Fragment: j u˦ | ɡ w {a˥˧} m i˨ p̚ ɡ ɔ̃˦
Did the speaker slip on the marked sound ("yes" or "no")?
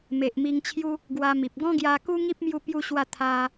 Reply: yes